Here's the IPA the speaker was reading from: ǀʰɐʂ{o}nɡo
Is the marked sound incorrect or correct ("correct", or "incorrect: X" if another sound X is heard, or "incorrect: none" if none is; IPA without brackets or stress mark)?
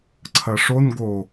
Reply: correct